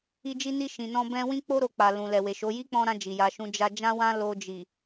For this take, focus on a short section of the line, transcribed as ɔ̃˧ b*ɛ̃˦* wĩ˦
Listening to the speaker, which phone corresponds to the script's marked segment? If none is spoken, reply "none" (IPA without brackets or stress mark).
ɛ̃˧